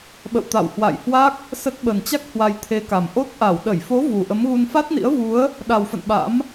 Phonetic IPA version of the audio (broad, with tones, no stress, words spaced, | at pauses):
ɓə̰˧˨wt̪a̰˧˨whwa̰˧˨jhwa˦˥k̚ | sə˦˥t̚ ɓə˨˩nt͡ɕa˦˥k̚ hwa˧jt̪ʰe˨˦ka˨˩m ʔo˦˥t̚ʔa˧˩w ɗə˧˩jfo˨˦ vu˨˩ʔə˨˦mɣu˧n fa˦˥t̚nḭ˧˥ə̯vu˨˦ə̯ | ɗa˨˩wfə̰˧˨n ɓa̰˧˥m